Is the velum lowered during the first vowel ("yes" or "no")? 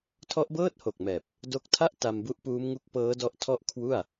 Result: no